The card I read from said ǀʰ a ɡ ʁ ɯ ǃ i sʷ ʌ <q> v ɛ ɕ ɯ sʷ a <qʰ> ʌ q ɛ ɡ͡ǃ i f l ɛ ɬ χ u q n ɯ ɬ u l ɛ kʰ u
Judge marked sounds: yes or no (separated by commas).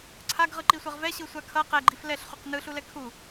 no, no